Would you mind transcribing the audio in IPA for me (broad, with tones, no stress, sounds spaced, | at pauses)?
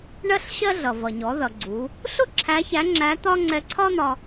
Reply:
ɳ ɜ˥ ɬ ɕ ɜ˥ ɮ ʌ˩ v ʌ˩ ɲ ɔ˩˧ ð ʌ˩ ɡ͡ǀ u˩˧ | ɬ ʊ˥ ǁʰ æ˧˥ ç æ˧˥ ŋ͡ǁ æ˧˥ t̪ ɒ˥ ŋ͡ǀ ɛ˧ ǀʰ ɒ˥ n̪ ɒ˧